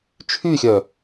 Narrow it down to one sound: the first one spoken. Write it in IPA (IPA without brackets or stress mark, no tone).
t͡ʃʰ